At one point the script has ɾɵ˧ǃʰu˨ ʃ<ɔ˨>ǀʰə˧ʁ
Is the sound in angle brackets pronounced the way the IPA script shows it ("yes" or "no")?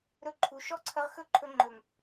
no